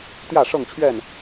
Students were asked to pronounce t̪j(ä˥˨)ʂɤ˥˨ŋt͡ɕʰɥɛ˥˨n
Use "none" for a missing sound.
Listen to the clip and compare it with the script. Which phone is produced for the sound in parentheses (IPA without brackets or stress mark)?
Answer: ä˥˨